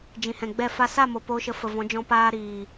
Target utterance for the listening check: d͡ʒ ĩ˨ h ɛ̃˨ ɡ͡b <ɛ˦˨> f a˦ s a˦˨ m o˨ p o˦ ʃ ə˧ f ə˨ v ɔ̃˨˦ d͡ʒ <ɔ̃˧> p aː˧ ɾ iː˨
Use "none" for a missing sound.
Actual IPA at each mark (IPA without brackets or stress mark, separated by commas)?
ɛ˦˨, ɔ̃˧